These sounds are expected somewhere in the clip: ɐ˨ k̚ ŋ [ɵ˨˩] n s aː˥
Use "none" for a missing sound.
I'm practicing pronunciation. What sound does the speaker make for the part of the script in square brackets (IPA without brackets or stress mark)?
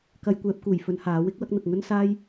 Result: ɵ˥